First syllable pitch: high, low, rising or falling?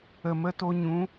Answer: low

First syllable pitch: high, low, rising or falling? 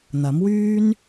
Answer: rising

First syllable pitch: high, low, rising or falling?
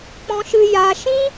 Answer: high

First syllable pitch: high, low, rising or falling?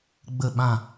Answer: falling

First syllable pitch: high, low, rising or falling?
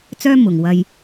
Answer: high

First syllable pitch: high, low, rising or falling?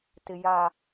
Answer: low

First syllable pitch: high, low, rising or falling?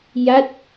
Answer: falling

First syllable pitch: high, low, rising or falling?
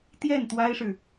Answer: falling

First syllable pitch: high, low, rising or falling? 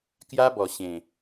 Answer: high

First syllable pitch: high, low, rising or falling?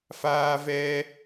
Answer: high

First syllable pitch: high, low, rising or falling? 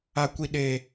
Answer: low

